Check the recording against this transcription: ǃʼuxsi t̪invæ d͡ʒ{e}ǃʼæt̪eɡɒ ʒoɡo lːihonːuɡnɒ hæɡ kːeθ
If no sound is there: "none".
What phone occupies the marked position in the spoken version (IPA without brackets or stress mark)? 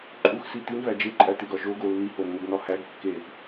e